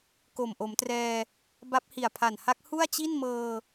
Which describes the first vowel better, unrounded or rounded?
rounded